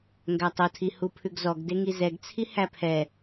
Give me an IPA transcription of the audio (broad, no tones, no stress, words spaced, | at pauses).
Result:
ŋɡætˤotʰi hupʰʉɡzɔɡde ŋizɛɡt͡sʰi hæpʰɛ